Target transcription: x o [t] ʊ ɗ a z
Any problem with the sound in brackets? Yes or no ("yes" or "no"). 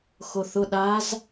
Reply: yes